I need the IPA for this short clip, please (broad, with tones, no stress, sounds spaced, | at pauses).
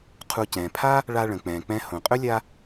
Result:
qʰ u˨ c ɛ̃ː˩ pʰ a˥ | ɭ a˦ ɭ ə̃˩ k͡p ɛ̃ː˩ k͡p ɛ̃˦ h õ˩ qʼ ɵ˥ lʲ a˦